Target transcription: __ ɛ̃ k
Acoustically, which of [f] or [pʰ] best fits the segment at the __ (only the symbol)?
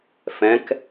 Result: f